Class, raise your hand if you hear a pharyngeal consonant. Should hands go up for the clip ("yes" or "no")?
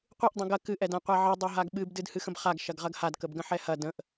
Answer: yes